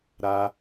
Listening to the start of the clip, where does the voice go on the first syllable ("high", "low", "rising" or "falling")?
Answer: high